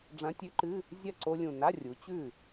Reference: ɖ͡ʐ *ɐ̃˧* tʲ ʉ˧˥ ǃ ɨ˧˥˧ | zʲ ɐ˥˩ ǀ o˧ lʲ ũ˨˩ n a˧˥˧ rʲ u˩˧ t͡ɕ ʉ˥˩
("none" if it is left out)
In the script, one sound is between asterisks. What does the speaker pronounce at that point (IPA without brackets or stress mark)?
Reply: ɐ̃˧˥